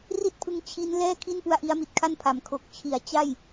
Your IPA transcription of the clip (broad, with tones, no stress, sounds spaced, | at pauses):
r i˥˩ t̚ pʰ ɯ˧ ŋ t͡ɕʰ i˦˥ n l ɛː˥˩ kʰ i˥˩ n p u˧ a̯ ʔ i˦˥ a̯ m i˨˩ t̚ kʰ a˥˩ n pʰ a˩˦ m kʰ o˨˩ k̚ t͡ɕʰ i˩˦ a̯ t͡ɕ a˥˩ j